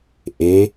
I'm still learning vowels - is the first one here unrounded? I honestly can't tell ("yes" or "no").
yes